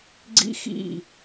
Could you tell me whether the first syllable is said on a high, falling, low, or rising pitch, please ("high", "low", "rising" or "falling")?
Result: high